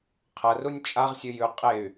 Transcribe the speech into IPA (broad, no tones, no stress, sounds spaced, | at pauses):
qʰ ɐ r u nʲ t͡ʃʼ a ʁ sʲ ɨ j ʉ qʼ e y̯